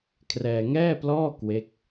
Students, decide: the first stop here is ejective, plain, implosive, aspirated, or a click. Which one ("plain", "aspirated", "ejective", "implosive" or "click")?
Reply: aspirated